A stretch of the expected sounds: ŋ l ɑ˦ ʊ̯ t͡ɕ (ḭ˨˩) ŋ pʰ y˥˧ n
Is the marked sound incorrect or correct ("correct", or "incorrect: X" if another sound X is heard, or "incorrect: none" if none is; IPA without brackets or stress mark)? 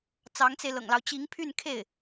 incorrect: i˧˥